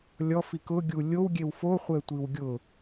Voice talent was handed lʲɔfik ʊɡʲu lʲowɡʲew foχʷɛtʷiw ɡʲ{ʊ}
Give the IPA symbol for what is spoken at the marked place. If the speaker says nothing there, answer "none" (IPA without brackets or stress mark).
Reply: ʊ